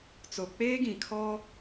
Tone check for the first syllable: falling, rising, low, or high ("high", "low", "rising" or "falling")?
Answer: low